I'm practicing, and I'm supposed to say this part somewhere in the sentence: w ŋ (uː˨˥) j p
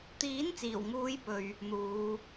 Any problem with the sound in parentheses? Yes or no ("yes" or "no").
yes